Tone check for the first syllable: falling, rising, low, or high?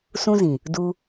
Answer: high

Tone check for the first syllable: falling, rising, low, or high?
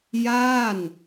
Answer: falling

